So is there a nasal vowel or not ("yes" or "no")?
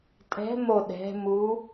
no